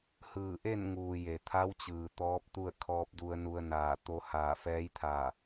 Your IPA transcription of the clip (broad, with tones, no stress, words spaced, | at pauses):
hɯː˧˩ʔe˥˨nŋuː˩ je˩t̪ʰa˧˥wt͡ɕɯː˩ t̪ɔː˧˥p̚t̪u˥˨ə̯ kʰɔː˧p̚du˧ə̯nu˧ə̯ naː˧˩ t̪o˧ haː˧˩fɛː˧˥jt̪ʰaː˧˩